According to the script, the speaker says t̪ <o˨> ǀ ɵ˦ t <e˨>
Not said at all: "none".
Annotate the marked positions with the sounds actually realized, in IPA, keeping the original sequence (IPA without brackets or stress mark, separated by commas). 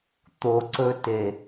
o˨, e˨